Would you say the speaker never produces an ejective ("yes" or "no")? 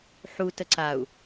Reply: yes